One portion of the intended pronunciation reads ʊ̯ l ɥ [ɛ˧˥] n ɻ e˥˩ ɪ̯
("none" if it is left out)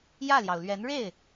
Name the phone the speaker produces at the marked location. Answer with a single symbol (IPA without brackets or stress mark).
ɛ˧˥